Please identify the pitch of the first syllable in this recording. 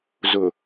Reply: low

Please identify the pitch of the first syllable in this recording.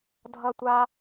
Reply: high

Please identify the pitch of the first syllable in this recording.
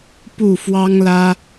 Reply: falling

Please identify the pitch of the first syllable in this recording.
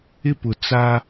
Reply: high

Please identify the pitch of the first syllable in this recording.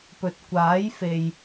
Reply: low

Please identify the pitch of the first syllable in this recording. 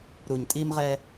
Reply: low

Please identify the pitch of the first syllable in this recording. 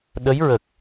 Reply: rising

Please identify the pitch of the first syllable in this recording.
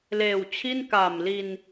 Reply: low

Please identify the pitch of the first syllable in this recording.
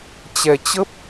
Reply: low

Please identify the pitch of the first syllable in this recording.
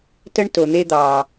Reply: high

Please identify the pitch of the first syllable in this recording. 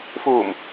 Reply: low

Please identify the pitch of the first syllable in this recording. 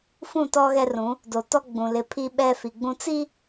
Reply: falling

